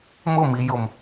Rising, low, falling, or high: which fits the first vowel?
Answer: falling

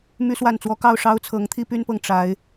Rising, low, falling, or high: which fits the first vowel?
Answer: high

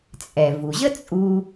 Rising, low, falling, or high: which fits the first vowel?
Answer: low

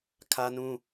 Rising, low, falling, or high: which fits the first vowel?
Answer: high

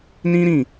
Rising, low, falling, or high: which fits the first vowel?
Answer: high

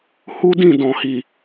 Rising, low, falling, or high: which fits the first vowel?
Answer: high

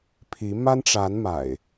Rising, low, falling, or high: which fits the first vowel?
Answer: rising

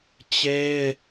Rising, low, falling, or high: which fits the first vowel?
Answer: high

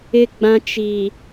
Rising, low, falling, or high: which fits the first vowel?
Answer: low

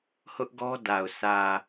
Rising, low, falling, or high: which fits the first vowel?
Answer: high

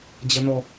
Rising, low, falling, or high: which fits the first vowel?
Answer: low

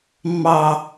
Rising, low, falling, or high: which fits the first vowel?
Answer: low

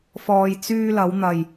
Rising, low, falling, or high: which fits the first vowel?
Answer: low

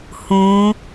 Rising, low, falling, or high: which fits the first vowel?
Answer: rising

